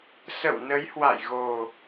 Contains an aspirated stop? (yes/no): no